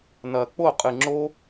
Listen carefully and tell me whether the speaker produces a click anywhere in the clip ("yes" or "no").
yes